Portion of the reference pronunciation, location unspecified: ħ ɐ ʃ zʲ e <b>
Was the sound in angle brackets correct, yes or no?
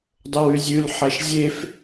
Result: no